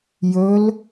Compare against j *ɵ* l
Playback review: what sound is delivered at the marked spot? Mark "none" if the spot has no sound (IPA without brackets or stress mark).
ɵ